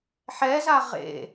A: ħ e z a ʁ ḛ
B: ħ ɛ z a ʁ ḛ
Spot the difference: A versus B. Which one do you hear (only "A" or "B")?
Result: B